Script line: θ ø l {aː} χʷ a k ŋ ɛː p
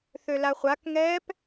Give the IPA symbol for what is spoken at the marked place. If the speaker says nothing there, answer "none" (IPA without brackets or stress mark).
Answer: a